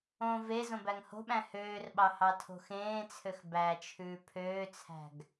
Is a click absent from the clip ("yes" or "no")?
yes